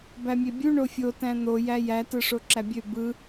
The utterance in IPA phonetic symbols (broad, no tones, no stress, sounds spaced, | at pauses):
b æ mʲ e bʲ u ɳ o fʲ o t æ̃ n̪ o j æ j æ t ɯ ʂ o ǁ æ bʲ ø b ɯ